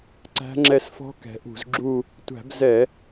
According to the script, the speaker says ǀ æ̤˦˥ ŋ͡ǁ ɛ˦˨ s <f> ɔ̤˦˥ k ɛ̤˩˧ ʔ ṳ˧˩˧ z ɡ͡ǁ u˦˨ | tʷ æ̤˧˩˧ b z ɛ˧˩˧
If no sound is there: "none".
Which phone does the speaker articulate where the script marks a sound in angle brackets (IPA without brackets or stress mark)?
f